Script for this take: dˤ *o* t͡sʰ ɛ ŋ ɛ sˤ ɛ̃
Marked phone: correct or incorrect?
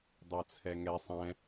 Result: correct